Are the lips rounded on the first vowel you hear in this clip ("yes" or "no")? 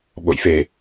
yes